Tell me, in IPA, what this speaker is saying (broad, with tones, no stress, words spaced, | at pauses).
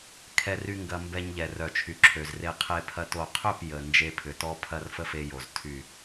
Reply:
kʰɛ˧ry˧ ŋɡɐ˧ mbɛ˧ɲ ʎɛ˨ rœ˨t͡ʃʰy˨ǁʰø˨z re˧ qʰe˧pʰɐ˧ to˨qʰø˦˨p jə˨ nd͡ʒe˧pʰʏ˨tɔ˦ pʰɐ˦rfə˦fe˧jo˨z tʰy˨